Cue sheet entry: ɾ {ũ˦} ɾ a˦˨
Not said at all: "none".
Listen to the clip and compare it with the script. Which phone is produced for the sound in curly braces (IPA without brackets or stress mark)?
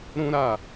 ũ˦